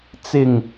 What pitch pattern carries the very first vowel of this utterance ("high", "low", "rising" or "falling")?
low